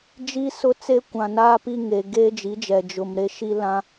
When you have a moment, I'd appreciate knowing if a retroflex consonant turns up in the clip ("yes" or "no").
no